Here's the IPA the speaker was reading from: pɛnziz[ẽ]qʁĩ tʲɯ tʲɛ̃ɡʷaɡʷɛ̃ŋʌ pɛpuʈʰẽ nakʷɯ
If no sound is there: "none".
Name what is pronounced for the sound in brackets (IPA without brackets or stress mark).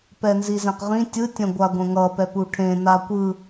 ẽ